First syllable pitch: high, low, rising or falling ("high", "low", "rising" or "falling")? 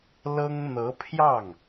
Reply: high